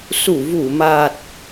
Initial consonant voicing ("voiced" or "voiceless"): voiceless